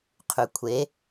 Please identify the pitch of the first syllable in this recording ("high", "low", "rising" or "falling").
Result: low